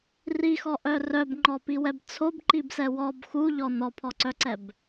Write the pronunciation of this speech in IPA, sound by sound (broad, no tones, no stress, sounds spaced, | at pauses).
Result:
r i x ɔ ʔ œ r œ b ŋ͡ǃ ɔ p i w ɛ b t͡sʰ o b ǃ i b s ɛ w ɔ b x u ʎ ɔ n ɔ pʰ ɔ ǀ œ ǀ ɛ b